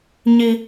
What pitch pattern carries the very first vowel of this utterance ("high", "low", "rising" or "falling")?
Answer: high